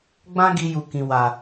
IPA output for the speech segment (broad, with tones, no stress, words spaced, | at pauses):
ɡ͡bã˦ɡi˧ju˨ kĩ˨wa˨